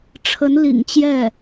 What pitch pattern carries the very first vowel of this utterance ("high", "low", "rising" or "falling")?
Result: rising